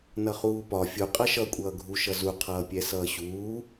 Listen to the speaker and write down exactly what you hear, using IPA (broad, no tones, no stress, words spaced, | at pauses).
nʌχuːpɒ fʲu qʼʌʃʌ kʷʼʌːɡʱu ʃʌzu qʰʌːpʲɛsʌːɕuː